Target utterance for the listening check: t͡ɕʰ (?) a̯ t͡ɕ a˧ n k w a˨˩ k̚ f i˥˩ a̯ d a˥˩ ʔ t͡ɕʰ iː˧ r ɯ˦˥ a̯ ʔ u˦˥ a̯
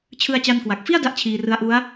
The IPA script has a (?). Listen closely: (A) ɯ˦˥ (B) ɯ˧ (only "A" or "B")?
B